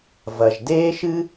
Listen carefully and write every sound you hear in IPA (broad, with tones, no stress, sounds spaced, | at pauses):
v ɐ˩ ʒ d eː˥ ʃ ɨ˥